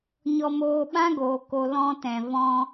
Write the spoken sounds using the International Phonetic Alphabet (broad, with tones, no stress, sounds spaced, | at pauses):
ɲ ɔ˧ m oː˧ ɓ ã˦ ɡ oː˨ k o˧ l ɔ̃˧ t ɛ̃˨ v ɔ̃˧